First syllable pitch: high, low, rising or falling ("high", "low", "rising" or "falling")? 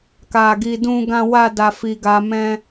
high